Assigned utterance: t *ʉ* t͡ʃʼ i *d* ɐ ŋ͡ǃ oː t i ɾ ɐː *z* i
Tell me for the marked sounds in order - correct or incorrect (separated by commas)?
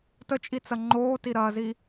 incorrect, incorrect, correct